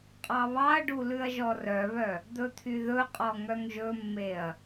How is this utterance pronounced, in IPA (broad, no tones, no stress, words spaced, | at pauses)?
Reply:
qʼɑβɑɐ̯ɖu lʉɐ̯ʒɔrœβœ | d̪ɵt̪ʰyðɵqʼɔ ŋœŋʒɵmːeɐ̯